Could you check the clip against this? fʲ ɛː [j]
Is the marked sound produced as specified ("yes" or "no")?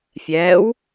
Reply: no